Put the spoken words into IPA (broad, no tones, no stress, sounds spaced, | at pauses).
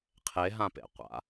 qʰ e ɦ ã p ḛ qʷ a̰